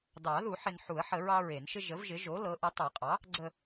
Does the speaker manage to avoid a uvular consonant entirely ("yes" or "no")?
no